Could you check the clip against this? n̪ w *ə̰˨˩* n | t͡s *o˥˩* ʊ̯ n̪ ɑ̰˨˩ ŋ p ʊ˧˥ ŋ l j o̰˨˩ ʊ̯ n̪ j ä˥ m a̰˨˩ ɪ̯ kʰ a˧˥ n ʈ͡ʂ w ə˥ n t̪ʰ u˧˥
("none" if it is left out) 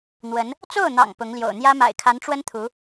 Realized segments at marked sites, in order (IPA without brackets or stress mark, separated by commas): ə˧˥, o˥˩